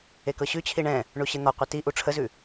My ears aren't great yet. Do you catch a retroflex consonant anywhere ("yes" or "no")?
yes